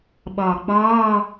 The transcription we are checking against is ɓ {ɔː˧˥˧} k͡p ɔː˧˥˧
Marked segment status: incorrect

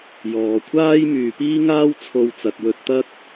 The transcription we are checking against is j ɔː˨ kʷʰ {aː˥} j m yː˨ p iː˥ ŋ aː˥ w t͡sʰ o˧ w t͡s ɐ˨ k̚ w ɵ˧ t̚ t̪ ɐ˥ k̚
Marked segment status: correct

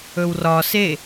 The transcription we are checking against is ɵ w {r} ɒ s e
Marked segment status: correct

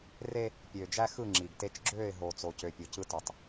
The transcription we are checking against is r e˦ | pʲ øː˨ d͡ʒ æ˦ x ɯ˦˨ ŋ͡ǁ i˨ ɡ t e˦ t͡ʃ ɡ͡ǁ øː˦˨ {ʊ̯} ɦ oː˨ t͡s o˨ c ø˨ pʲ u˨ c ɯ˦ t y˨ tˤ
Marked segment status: incorrect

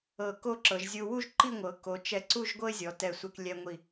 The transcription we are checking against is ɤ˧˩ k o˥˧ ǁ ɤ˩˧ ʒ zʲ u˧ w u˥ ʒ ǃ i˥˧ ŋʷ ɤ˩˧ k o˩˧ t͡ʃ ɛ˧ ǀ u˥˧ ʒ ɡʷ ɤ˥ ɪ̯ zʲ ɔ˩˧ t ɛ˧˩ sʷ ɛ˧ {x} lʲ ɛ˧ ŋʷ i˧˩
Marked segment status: incorrect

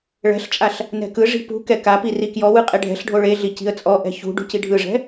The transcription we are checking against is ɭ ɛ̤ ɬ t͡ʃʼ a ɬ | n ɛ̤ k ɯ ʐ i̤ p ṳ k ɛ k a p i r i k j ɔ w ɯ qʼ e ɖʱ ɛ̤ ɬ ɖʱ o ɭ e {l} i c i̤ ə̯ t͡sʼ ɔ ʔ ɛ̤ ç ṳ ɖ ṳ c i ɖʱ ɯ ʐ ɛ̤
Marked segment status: incorrect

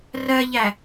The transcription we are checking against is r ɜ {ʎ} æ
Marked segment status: correct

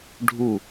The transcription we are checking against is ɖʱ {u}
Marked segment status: correct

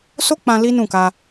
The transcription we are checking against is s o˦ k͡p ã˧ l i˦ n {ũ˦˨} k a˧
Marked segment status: correct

